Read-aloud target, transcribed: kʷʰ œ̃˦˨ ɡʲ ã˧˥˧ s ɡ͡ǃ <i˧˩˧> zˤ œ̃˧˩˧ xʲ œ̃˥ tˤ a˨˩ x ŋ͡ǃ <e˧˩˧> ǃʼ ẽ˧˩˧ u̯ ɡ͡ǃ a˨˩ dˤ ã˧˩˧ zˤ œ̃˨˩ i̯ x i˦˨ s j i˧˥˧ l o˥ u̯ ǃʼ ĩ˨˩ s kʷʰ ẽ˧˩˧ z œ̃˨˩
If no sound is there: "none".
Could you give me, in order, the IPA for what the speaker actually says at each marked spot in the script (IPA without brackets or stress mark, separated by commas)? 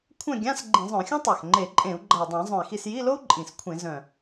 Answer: ĩ˧˩˧, e˧˩˧